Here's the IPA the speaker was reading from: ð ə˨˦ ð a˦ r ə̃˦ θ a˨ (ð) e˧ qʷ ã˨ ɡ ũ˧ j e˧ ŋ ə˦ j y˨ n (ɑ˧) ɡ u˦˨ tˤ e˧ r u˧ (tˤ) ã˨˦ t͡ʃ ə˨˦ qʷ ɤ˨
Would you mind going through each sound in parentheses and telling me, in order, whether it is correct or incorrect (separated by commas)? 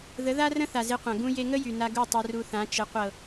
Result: incorrect, incorrect, incorrect